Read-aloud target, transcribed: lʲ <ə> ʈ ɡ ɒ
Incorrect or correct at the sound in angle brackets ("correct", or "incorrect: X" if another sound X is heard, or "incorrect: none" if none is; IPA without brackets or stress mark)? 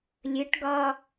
correct